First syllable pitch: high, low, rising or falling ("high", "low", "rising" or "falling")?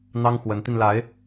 high